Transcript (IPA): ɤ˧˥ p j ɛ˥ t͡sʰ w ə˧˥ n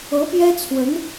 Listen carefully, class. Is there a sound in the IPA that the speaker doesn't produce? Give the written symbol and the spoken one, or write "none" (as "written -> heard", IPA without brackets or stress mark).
none